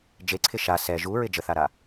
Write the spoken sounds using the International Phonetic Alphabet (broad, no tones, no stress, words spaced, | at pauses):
d͡ʒeǀʰɪ ʃa sɛ ʒuɹɪ d͡ʒəθaɾa